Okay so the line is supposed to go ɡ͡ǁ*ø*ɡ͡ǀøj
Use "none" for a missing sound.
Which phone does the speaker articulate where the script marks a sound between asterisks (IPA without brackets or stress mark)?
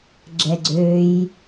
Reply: ɛ